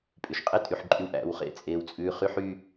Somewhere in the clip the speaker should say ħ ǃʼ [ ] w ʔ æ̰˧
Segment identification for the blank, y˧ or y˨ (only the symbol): y˧